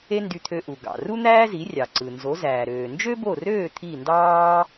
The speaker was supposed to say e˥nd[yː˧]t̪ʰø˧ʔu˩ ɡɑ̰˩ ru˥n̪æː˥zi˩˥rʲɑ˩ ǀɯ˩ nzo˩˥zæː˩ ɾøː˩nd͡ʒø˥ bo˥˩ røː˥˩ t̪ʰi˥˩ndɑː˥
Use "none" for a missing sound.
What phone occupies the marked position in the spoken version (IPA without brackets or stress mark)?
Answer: y˧